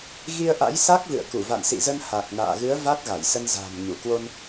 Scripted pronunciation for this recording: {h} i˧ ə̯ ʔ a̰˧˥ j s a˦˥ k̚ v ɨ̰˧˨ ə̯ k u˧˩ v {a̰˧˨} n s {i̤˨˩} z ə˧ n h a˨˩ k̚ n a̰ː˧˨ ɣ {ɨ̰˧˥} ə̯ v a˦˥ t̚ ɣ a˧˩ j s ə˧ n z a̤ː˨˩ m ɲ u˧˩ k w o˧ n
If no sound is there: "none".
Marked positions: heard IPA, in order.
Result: ɣ, a̰˧˨, ḭ˧˨, ɨ˨˦

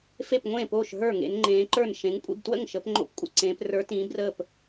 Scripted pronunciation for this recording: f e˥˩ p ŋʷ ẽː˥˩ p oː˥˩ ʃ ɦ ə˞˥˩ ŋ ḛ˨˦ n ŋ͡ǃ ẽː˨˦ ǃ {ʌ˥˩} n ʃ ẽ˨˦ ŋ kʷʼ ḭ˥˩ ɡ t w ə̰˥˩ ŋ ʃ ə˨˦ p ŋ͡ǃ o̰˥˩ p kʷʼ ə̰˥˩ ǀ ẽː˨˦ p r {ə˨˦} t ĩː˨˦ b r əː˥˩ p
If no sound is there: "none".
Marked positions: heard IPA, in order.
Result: ə˞˥˩, ə˞˨˦

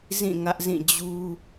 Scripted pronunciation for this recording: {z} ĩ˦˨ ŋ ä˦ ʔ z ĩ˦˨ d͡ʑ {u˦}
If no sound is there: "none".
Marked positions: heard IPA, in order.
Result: z, u˦

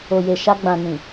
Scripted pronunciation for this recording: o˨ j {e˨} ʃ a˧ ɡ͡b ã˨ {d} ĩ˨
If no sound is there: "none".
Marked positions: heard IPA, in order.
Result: e˨, n

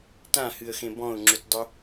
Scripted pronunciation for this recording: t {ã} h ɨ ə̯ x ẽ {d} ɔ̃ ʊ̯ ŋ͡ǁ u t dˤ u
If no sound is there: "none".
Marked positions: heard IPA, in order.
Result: ã, b

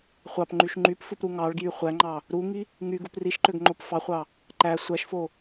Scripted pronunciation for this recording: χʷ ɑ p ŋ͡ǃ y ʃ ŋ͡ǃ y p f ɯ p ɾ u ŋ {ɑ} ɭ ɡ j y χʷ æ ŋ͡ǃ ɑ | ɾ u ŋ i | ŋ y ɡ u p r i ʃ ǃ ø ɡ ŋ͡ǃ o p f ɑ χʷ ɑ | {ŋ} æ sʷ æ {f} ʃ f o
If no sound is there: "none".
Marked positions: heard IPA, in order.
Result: ɑ, ǃ, none

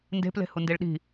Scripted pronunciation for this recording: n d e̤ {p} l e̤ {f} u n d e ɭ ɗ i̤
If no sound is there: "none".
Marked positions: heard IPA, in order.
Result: p, h

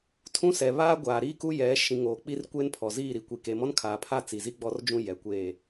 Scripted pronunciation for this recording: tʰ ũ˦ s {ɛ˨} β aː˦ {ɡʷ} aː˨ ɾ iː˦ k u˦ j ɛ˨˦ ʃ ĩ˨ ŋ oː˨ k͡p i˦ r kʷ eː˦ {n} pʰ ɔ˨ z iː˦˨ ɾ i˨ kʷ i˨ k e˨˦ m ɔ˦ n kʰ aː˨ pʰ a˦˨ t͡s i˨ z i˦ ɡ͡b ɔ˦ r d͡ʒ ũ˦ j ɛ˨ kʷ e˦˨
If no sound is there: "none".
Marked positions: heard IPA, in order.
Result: ɛ˨, ɡʷ, n

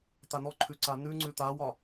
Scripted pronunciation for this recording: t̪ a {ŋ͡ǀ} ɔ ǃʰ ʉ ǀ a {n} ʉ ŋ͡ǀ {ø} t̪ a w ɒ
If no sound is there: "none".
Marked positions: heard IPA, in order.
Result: n, n, ʉ

